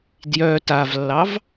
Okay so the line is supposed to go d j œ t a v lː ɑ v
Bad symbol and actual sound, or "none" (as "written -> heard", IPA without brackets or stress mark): none